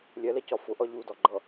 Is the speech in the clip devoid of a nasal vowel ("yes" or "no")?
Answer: yes